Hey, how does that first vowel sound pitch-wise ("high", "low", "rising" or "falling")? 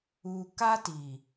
low